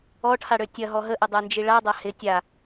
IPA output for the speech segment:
ɔ ʈʰ a ɽ ø tʲ ɐ ɦ ɔ ɦ ə ʔ ɪ dˤ œ n d͡ʒ i ɭ a dˤ a h ɪ tʲ a

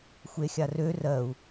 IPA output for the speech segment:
xʷ e xʲ a r ø r ɜ u̯

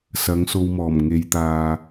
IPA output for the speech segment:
s ɐ˨˥ ŋ s o˧ w m ɔː˨˩ m ŋ e˨˧ j t̪ aː˧

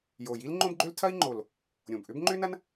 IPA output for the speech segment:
j o˨˩ j i˥ l ŋ͡ǃ õ˥ b ɡ͡ǃ ø˥ l tʰ ɐ˥ i̯ ŋ͡ǃ o˨˩ l | ɾʲ õ˨˩ b ʔ ʏ˥ b ŋ͡ǃ ʏ˥ n ɐ˥ n

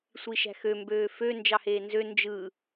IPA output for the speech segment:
sʷ i ʃ æ̤ x ø m b øː f ø n d͡ʒ ɑ h eː n z ø n d͡ʒ ɯ

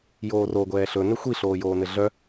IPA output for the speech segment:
j oː r o ɡʷ ɛː ɬ ɵ n ɘ xʷ i ɬ oː j oː n ɘ ɮ œ

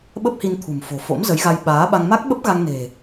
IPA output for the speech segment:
ɓ ə˦˥ p̚ h i˧ n t̪ʰ ṳ˨˩ m f o̤˨˩ f o̰˧˥ m z ə˨˦ j ɣ a˧ j ɓ aː˨˦ ɓ a˧ ŋ m a˦˥ k̚ ɓ ə˦˥ p̚ ɣ a˧ ŋ n e̤˨˩

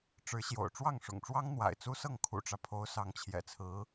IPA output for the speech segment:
ʈ͡ʂ ɻ̩˧˥ ɕ j o̰˨˩ ʊ̯ ʈ͡ʂ w ɑ˥˩ ŋ ʂ ʊ̰˨˩ ŋ ʈ͡ʂ w ɑ˥ ŋ n̪ w a̰˨˩ ɪ̯ t͡s u˥ s ɤ˥˩ ŋ kʰ ṵ˨˩ ʈ͡ʂ ä˦ pʰ o˧˥ ʊ̯ s ɑ˧˥ ŋ t͡ɕʰ j ɛ̰˨˩ t͡sʰ ɹ̩˧˥

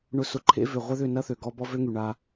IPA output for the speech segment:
ɳ ʊ˨ s ʊ˨ ǃʰ ḛ˦ v ʏ˨ ʁʷ ɛ˦ ð ʏ˦˨ n ɐ˦ θ ø˨ ɡ ɔ˧ b ɔ˦ v ø˦ ŋ y˨ ɳ a˧

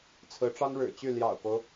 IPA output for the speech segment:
t͡sʰ ɹ̩˧˥ ʈ͡ʂ ɑ˥ ŋ ɻ ɻ̩˨˩ t͡ɕ y˥˩ l j ɑ̰˨˩ ʊ̯ k o˦ ʊ̯

